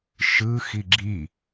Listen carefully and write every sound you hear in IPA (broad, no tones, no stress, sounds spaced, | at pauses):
ʃ ɯ x i ɡ͡ǁ i